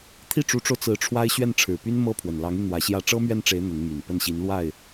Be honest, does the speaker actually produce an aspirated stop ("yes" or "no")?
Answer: yes